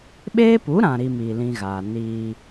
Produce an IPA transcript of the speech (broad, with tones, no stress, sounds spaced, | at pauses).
ɓ eː˦ p u˨˦ ɾ ã˨ ɾ i˦ m iː˨ l ĩ˦ ɣ aː˨ n iː˦